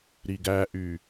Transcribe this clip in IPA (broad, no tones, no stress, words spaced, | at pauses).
ɾiɡæʔy